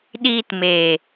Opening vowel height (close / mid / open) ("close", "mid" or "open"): close